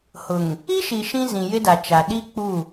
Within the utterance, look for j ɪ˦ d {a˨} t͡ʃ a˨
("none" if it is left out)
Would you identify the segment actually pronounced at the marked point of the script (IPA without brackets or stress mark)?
a˨